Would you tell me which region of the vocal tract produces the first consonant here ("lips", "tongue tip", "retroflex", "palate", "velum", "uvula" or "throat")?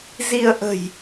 tongue tip